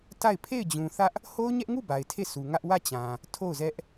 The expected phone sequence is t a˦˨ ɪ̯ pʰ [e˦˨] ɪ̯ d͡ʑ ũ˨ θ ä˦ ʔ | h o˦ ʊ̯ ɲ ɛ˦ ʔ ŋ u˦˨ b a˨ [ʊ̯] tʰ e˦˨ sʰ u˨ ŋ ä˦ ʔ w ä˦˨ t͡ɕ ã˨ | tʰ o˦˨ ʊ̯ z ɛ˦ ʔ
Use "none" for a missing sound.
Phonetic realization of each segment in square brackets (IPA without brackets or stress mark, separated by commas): e˦˨, ɪ̯